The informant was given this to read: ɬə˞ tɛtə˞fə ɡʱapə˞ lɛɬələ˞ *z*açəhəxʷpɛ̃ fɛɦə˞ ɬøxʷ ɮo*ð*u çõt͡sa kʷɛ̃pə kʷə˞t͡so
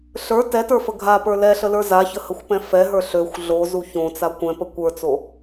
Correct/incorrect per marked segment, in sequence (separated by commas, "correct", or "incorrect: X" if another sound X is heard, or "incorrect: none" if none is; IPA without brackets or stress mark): correct, incorrect: z